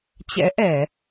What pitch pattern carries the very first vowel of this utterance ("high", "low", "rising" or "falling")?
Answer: rising